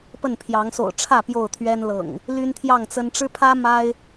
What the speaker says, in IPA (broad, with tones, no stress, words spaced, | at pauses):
pə˥˨npʰjɑ˨˦ŋ so̰˨˩ʊ̯ʈ͡ʂʰä˥˨ pjo˥˨ʊ̯t̪ʰɥɛ˦nlɤ̰˨˩ŋ | ly˦nt̪ʰjɑ˥˨ŋt͡sə˦n ʈ͡ʂɻ̩˦pʰä˦ ma˦ɪ̯